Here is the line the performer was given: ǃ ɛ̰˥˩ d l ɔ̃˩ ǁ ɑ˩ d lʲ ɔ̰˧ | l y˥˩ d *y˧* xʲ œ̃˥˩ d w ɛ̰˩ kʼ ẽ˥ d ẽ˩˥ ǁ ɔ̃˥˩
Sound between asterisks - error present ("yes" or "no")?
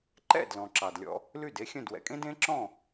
yes